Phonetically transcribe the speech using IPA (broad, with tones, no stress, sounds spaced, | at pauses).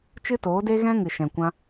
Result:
t͡ʃ ɨ˦ t oː˨˦ d e˦ ɣ ɛ̃˦ ŋ ɨ˨ ʃ ɛ̃˨ kʷ ã˧